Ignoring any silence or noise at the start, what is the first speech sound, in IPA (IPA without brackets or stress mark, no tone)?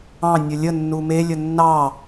ɑ̃